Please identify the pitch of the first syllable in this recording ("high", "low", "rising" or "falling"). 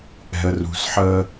low